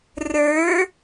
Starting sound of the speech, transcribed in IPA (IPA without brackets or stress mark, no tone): r